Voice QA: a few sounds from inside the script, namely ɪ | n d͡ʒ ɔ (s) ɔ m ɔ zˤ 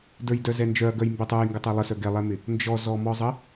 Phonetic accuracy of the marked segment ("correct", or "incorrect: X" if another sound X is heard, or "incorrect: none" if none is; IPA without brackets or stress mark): incorrect: z